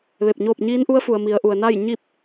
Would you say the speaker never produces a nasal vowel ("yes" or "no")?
yes